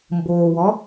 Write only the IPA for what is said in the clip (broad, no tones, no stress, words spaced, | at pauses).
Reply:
mboːwɔ